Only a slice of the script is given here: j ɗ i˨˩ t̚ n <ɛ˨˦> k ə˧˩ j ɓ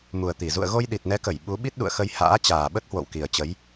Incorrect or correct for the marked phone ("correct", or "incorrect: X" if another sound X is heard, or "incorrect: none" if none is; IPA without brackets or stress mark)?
correct